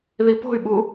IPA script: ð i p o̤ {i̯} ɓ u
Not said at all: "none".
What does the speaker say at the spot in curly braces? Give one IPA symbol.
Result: y̯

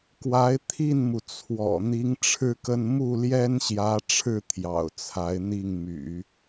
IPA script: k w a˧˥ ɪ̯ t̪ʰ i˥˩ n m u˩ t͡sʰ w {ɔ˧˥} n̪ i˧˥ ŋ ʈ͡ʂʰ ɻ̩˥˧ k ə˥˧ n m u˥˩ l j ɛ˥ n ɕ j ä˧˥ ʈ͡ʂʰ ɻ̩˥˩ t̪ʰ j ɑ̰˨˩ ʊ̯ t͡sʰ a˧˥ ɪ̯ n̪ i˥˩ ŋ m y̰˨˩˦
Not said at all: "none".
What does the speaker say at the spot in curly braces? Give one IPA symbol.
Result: ɔ̰˨˩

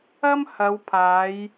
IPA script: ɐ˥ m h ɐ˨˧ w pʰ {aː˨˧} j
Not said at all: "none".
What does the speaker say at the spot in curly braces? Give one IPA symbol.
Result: aː˨˧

